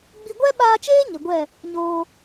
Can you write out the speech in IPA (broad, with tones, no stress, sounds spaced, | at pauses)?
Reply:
ɡ͡b i˧ ɡʷ ɛ˦ ɓ aː˧ t͡ʃ eː˦ ɲ ə˨ ɡʷ ɛ˦˨ | ɲ oː˧